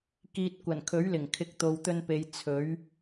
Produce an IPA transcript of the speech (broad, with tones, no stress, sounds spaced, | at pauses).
k iː˨ t̚ kʷ ɐ˨˩ n kʰ ɵ˨˥ ɥ l ɪ˨˩ ŋ kʰ ɪ˨˥ k̚ t̪ o˨ w t̪ ɵ˧ n p e˨ j t͡sʰ ɵ˨˥ ɥ